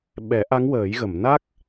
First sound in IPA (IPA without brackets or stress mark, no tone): ɓ